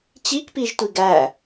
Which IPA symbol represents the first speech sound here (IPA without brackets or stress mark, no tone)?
t͡ɕ